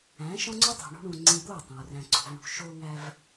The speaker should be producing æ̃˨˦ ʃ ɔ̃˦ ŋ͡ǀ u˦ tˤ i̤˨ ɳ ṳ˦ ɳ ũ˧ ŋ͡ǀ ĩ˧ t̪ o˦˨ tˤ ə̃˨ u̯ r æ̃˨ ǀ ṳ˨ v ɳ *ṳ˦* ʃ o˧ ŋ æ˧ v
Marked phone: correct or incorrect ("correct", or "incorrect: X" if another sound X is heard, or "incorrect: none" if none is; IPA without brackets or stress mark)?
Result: incorrect: ṳ˨